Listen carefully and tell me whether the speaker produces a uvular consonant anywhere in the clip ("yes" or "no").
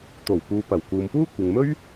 no